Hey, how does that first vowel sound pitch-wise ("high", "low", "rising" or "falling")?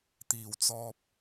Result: low